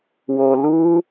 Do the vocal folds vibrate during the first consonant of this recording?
yes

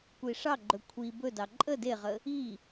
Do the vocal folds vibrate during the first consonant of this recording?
no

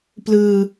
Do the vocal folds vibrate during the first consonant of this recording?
no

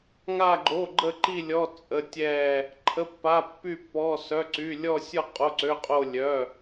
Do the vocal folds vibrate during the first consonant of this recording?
yes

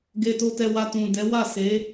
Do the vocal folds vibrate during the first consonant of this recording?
yes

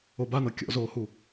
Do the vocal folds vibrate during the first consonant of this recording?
yes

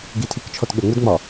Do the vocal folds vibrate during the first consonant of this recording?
yes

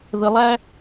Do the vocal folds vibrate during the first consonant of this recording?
yes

